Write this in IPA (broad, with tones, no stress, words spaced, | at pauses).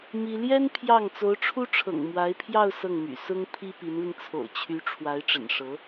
mi˥ ljɛ˥n pʰjɑ˥˩ŋ t͡so˧˥ʊ̯ʈ͡ʂʰu˥ʈ͡ʂʰɤ̰˨˩ŋ mwa˧˥ɪ̯pʰjɑ˥˧ʊ̯ sɤ˥˩ŋmy̰˨˩ sʊ˥ŋ pʰi˥pi˧˥nli˧ŋ t͡sʰo̰˨˩ʊ̯t͡ɕʰy˧˥ ʈ͡ʂʰwa˧˥ɪ̯ʈ͡ʂə̰˨˩nʂɤ˧˥